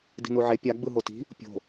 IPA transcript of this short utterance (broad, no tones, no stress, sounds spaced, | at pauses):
d i̤ n u ʕ e pʲ a ɡ͡b ɯ ɦ o t i̤ | pʲ o̤